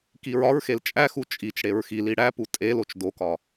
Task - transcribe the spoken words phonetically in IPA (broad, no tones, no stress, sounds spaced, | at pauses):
k i ɹ ɒ ɹ x e l t͡ʃʼ æ x u t͡ʃʼ i t͡ʃ ɽ e ɹ x i l i ɽ æ p u tʼ e l o t͡ʃ d o k ɒ